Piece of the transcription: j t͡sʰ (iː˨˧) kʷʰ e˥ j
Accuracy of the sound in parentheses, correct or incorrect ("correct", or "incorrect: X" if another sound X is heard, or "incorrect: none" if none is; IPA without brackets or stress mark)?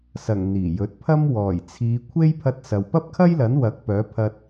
correct